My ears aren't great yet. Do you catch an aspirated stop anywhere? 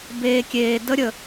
no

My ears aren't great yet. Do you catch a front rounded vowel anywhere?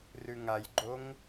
no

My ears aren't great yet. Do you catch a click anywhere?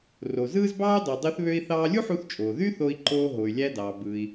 yes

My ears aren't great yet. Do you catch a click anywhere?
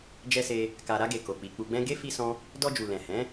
no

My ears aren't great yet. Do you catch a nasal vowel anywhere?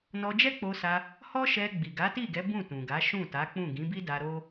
yes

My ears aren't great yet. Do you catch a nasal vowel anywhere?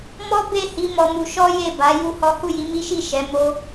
no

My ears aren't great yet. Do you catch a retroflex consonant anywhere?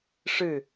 yes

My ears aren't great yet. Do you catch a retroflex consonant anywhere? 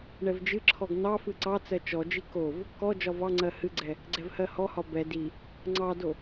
yes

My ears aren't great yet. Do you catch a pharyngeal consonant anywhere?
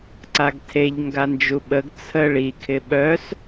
no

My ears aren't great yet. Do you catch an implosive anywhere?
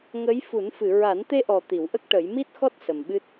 yes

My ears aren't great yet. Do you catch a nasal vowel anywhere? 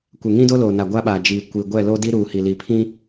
yes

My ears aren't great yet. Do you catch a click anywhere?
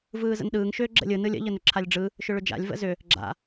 yes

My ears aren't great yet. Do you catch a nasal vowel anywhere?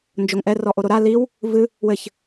no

